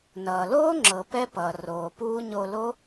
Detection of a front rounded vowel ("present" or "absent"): absent